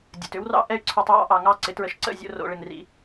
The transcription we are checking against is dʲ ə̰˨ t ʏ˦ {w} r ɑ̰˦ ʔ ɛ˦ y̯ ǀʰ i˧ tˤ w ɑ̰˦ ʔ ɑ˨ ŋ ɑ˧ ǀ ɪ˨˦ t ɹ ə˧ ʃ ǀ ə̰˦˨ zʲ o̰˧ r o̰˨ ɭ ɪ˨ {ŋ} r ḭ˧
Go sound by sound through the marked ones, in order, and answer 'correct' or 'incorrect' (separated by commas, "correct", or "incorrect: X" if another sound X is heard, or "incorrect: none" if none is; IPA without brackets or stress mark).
correct, correct